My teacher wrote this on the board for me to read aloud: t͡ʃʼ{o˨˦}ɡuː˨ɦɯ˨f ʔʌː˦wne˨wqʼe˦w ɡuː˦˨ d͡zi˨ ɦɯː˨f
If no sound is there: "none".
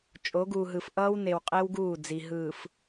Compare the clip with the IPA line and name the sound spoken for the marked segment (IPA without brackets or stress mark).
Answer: o˨˦